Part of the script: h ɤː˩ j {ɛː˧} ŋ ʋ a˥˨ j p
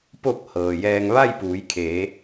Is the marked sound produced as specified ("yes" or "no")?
yes